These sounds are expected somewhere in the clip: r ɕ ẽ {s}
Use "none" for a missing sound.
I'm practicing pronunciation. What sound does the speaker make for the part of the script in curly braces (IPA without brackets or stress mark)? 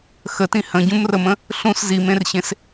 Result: s